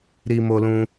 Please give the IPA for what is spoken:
ɾi˧mo˧lũ˧

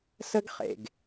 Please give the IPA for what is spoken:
sə˦ɡ χḛ˨ɡ

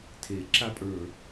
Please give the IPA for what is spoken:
tʰe ǁapʼə˞

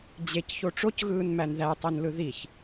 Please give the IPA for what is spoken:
d͡ʑec çoʈ͡ʂocɣɯːn mænðætˤinlɯ ðiç

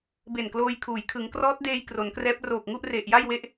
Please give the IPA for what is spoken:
be˨˩nkloː˧jkʰuː˩˦j kʰɯ˩˦ŋkrɔː˦˥t̚deː˧j kro˩˦nkrɛː˦˥p̚ roː˨˩k̚ŋu˥˩ʔ re˨˩ʔja˥˩jwe˦˥ʔ

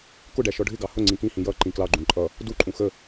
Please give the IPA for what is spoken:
kʊɖæ ʃɔɖʱɪɡɑ hʊ ŋ͡ǀĩkĩhĩ jʌ ǃĩklɑɡ͡ǃũ ǃʼʌ | duǃʼũ xə

